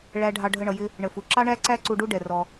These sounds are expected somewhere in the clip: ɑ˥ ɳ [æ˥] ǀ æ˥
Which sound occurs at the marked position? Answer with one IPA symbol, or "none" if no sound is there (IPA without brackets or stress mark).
æ˥